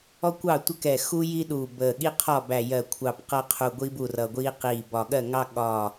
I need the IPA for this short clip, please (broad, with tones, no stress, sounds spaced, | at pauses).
ɔ˦ kʷ ɑ˥˩ tʷ ə˦ k ɛ˧˩ x u˦ j i˦ ɗ u˧˩ b əː˧˩ ɠ i˦ qʰ ɒ˥˩ b æ˧˩ j ɜ˧˩ kʷʰ ɑ˧˩ p q ʌ˦ qʰ u˧˩ ɡʷ i˦ b u˥˩ r ʌ˧˩ ɡʷ iː˦ q iː˧˩ b ɒ˧˩ ɠ ɜ˥˩ ŋ ɑ˦ ɠ ɒ˧˩